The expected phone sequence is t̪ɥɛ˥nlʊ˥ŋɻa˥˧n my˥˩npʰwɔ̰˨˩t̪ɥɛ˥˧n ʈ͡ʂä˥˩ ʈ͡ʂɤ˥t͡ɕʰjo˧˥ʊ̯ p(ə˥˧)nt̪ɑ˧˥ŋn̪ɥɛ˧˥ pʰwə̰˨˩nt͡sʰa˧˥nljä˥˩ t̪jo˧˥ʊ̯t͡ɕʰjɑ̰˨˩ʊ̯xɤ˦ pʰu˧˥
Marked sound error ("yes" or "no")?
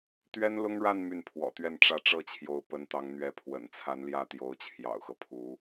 yes